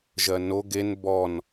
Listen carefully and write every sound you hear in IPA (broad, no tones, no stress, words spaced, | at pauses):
ʒɜno ɡen bɔn